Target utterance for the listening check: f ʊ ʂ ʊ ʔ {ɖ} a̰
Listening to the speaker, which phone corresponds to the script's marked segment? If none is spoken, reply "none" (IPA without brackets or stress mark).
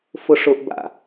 b